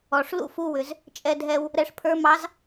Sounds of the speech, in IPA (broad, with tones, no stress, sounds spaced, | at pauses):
ɔ˩ ʂ l ṵ˥ f u˧ w ʏ˩ z | t͡ʃʼ ɛ˧ dʱ ɛ˧ w | ɾ ɛ˧ ʂ pʰ ə˞˧˥ m ɑ˧˥ z